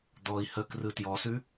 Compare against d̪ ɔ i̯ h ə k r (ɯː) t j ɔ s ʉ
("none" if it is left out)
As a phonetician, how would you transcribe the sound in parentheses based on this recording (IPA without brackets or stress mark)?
ɯ